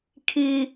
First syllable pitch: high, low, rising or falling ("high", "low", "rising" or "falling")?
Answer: low